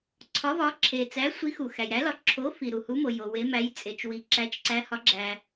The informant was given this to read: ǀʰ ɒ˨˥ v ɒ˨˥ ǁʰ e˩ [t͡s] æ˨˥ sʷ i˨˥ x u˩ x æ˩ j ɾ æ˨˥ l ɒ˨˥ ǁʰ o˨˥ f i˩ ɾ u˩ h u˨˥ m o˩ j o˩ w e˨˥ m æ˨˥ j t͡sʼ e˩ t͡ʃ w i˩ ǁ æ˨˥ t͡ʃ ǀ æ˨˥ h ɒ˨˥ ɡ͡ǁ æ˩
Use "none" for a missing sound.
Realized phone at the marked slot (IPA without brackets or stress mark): t͡s